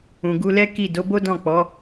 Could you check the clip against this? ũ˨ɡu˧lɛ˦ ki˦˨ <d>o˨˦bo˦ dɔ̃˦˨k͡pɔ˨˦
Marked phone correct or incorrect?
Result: correct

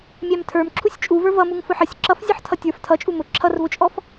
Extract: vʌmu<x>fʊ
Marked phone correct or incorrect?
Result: incorrect: ŋ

